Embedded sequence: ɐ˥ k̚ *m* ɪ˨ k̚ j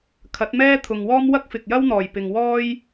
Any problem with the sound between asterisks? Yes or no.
yes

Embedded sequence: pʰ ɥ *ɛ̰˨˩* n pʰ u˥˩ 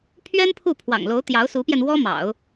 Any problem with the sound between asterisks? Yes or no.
yes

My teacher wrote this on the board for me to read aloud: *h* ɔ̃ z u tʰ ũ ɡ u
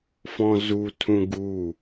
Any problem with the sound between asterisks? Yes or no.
yes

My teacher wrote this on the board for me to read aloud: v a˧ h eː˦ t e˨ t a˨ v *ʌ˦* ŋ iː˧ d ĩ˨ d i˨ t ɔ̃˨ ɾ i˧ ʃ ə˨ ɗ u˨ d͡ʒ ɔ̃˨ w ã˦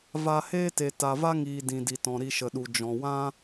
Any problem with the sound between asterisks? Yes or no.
yes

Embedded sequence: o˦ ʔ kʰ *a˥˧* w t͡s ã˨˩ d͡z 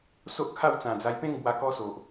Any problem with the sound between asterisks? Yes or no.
no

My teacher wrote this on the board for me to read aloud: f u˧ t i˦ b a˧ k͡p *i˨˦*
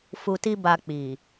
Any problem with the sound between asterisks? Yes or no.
yes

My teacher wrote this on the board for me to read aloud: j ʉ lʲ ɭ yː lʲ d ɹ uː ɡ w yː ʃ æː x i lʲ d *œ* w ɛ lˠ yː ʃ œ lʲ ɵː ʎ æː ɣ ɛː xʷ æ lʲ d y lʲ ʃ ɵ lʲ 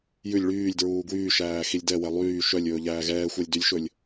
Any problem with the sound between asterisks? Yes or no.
yes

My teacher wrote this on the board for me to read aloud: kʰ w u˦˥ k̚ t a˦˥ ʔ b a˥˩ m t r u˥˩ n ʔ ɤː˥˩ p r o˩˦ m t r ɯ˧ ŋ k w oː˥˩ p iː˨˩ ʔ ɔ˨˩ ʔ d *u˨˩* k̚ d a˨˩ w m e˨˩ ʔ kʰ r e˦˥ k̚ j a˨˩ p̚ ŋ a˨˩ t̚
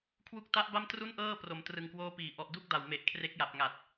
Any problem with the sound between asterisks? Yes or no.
yes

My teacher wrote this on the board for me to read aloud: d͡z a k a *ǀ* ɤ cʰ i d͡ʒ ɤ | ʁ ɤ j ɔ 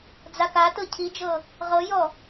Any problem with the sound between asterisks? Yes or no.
yes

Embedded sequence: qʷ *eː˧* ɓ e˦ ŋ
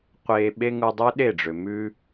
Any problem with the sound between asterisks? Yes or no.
no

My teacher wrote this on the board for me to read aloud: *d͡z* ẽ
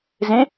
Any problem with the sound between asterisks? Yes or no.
yes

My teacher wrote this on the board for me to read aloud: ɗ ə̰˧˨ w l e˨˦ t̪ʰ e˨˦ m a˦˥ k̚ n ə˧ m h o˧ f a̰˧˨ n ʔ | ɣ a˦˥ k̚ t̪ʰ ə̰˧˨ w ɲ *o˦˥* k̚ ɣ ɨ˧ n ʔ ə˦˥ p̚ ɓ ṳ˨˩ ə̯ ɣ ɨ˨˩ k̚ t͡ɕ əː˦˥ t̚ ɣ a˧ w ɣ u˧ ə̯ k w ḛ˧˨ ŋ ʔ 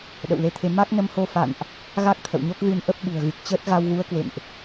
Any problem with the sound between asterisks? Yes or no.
no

